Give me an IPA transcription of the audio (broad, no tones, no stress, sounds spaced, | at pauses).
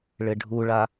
ɭ ɪ ɖʱ u ɭ a